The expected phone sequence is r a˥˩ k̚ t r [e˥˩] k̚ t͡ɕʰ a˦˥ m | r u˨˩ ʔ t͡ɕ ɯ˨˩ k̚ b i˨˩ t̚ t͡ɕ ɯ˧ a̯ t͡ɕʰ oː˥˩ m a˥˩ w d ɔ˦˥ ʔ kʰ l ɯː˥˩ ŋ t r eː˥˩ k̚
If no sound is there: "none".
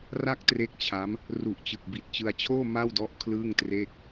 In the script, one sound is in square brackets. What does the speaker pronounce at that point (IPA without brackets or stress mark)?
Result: e˦˥